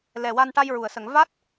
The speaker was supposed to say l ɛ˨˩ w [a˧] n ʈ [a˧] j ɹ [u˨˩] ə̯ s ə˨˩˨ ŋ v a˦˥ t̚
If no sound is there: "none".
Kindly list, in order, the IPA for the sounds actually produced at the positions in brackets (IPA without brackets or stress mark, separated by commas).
a˧, a˧, u˨˩˨